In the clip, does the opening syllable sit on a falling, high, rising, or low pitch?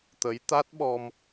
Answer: rising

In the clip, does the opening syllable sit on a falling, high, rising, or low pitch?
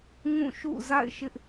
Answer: falling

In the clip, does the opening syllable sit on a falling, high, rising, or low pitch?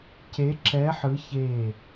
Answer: rising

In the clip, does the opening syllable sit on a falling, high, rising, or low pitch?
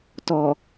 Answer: low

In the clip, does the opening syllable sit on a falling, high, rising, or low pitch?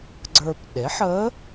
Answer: low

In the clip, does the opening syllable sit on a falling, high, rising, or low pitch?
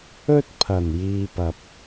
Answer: high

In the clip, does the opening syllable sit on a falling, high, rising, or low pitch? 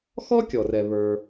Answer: high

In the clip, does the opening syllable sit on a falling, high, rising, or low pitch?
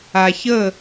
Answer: low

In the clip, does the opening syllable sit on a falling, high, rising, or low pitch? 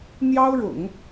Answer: high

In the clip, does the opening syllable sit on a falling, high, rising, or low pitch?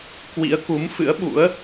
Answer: rising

